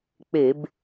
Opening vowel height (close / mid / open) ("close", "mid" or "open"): mid